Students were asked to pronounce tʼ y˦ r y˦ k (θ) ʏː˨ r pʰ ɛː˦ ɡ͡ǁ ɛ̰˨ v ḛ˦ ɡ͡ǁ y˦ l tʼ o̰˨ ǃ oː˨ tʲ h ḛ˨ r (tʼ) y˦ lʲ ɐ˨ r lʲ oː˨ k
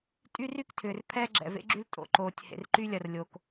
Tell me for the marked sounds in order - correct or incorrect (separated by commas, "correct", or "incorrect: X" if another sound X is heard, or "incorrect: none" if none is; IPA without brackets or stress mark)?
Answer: incorrect: tʰ, incorrect: ǃ